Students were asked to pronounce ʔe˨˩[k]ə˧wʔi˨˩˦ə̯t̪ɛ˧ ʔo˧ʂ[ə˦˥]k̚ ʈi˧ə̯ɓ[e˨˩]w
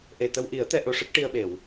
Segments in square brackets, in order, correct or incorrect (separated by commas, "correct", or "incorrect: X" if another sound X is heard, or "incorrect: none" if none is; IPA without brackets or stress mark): incorrect: t̪, correct, incorrect: e˨˩˨